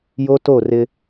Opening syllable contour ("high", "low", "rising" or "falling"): high